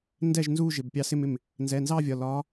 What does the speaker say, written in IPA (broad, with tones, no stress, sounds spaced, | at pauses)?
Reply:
n d ɛ˥˩ ʒ n z u˥˧ ʒ ɪ˩˧˩ b pʲ ɑ˧˥ s ɪ˥˧ m ɪ˥˩ m | n z ɛ˩˧˩ n z ɑ˥˧ vʲ ɒ˩˧˩ l ɒ˧˥